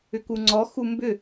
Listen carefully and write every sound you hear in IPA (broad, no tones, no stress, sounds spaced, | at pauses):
ʏ k u ŋ͡ǀ ɔ x u m b ʏ